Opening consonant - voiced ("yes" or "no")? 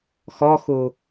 no